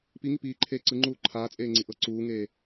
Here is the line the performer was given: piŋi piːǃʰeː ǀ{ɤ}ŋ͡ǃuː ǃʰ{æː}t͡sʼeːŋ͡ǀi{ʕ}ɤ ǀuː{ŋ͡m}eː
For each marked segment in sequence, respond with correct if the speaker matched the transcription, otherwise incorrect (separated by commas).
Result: incorrect, incorrect, incorrect, incorrect